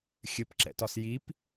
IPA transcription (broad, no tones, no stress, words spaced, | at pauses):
xʲɘpǁɛ̰tɒs jip